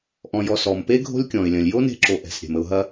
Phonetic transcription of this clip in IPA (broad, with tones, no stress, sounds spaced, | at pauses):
ʔ ɔ̃˨ j ɔ˨ s ɔ˩ m p e˥ ɡʱ o̤˦ lʲ kʲ ɔ̃˩ ɪ̯ lʲ ɐ̃˩ lʲ j o˥ n e̤˦ ǁ o˨ ʔ ɛ̤˩ s ɾʲ ɛ̤˩ m ə˨ ʊ̯ ɦ ɐ˥